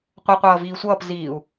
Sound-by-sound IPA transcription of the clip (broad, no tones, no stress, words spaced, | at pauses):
qʷɜqʷʌː viːsʷʌːp ziːu̯